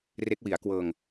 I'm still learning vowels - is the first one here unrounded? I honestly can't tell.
yes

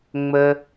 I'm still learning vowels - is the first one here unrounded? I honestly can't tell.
yes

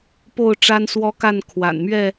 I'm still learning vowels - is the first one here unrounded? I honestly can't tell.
no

